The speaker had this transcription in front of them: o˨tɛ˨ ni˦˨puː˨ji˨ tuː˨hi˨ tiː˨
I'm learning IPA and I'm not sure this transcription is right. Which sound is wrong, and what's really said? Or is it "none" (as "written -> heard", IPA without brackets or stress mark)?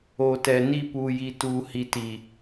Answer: none